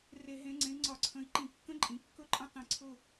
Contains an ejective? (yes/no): yes